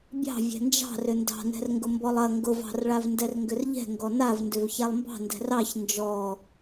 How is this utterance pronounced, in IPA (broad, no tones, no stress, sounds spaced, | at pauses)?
bʲ ɑ̤ vʲ ɛ̤ n d͡ʒ ɑ̤ r ʏ n d ɑ̤ n ɛ̤ r ŋ ɡ ʊ m b ɔ lˠ ɐ ŋ ɡ ʊ v ɑ̤ r ɭ a v n d ɛ r ŋ ɡ ʏ r ʎ ɛ̤ ŋ ɡ ɔ n a v n d ʏ v ç a lˠ m b ɑ̤ n d ɛ̤ r ɑ ç n d͡ʒ ɔ